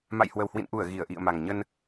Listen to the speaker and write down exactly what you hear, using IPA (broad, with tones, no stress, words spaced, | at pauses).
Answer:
ma̰˧˨jhwə˨˩whwḭ˧˨nʔu˧˩ə̯ ɣi˧˩ə̯ʔḭ˧˨ə̯ma˨˩ŋ ɲə˧n